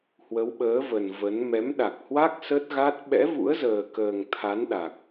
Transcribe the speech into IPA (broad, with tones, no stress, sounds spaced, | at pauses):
h w ə˨˦ w ɓ əː˨˦ v ə˨˩ n v ə˨˦ n m ɛ˨˦ m ɗ a˨˩ k̚ h w a˦˥ k̚ s ə˦˥ t̚ ɣ a˦˥ t̚ ɓ ɛ̰˧˥ v ṵ˧˥ ə̯ z əː˨˩ k əː˨˩ ŋ t̪ʰ a˨˦ n ɗ a˨˩ k̚